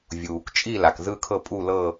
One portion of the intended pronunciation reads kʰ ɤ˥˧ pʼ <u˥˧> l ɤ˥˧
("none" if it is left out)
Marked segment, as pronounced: u˥˧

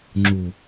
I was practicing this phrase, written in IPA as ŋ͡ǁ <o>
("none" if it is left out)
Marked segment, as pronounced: u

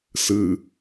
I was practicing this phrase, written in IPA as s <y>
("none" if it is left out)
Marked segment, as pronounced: ɨ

